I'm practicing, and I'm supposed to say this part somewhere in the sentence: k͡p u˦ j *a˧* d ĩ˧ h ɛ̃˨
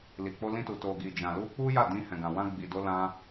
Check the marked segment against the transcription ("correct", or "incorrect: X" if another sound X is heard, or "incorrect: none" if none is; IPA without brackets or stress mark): incorrect: a˦˨